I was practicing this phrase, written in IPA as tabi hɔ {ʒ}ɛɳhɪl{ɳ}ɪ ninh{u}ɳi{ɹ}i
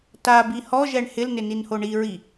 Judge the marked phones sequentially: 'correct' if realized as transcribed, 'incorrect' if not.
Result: correct, incorrect, incorrect, correct

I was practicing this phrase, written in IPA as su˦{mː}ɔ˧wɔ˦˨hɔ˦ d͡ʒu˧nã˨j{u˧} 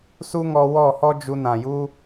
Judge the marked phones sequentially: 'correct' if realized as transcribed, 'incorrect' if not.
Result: incorrect, incorrect

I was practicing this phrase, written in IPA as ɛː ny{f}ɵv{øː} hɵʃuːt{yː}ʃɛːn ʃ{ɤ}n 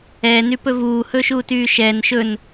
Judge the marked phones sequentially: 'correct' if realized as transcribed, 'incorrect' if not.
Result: incorrect, incorrect, correct, incorrect

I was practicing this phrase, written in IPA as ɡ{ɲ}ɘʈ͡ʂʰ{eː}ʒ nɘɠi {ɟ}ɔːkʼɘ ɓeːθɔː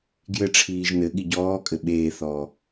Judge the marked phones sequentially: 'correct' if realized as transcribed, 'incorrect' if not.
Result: incorrect, incorrect, correct

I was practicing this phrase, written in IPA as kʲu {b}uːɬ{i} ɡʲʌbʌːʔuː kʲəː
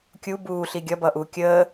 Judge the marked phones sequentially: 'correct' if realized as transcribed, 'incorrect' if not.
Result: correct, correct

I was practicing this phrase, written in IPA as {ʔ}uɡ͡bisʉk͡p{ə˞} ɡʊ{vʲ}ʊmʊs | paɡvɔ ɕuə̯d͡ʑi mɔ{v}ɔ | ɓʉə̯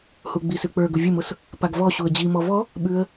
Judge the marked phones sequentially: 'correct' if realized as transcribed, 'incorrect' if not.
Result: incorrect, correct, correct, correct

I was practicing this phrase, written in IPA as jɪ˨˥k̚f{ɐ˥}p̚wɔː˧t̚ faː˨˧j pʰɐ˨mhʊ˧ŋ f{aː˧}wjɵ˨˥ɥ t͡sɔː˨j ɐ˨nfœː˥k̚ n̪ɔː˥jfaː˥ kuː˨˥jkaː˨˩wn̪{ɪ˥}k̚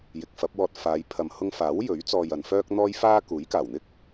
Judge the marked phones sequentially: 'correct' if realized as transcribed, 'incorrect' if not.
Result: incorrect, incorrect, correct

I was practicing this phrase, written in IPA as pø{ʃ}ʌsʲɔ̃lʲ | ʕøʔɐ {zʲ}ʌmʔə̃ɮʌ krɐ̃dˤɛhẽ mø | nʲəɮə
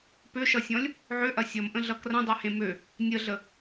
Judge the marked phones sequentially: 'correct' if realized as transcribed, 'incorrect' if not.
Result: correct, incorrect

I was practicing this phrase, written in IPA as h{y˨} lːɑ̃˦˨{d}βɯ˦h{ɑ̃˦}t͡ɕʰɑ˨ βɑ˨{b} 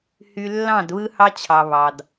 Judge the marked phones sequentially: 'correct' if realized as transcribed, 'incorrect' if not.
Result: correct, correct, incorrect, incorrect

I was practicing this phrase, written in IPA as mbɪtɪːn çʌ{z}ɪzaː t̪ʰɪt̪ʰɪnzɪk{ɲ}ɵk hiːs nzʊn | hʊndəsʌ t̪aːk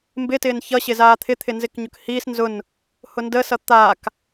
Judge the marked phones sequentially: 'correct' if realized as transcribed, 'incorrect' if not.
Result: incorrect, correct

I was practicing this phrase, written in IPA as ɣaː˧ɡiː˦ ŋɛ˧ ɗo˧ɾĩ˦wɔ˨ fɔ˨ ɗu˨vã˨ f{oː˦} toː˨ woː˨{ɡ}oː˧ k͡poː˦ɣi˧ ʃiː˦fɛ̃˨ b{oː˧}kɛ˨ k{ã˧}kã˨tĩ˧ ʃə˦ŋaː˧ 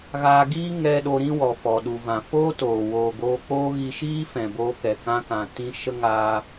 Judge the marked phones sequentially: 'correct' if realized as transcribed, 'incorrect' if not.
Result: correct, correct, correct, correct

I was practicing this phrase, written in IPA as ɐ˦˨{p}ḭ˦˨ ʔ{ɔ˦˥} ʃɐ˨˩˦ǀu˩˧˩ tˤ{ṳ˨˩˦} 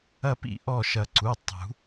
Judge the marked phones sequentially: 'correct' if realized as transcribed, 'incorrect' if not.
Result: correct, incorrect, correct

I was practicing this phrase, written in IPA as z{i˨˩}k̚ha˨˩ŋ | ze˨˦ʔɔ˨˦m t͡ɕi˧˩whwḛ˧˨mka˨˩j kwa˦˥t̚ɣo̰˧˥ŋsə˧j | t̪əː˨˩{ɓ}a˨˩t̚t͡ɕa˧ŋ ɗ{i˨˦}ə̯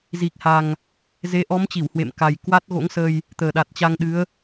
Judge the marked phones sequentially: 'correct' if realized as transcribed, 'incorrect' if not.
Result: correct, incorrect, incorrect

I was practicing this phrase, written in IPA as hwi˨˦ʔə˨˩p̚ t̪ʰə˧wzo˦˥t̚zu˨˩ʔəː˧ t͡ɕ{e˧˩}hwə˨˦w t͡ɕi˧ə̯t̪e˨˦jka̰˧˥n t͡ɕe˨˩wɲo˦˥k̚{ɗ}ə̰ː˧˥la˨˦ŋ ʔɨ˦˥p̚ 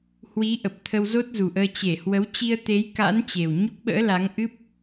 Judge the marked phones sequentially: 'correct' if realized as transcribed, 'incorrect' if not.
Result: correct, incorrect

